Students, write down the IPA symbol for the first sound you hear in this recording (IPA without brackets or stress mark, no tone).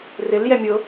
r